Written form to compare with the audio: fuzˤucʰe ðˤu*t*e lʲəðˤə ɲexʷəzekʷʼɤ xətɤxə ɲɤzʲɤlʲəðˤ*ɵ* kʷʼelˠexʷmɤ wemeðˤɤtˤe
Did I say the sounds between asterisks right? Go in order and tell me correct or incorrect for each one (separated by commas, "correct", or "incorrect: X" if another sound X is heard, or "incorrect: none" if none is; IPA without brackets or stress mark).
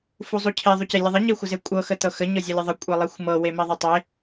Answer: incorrect: c, incorrect: ə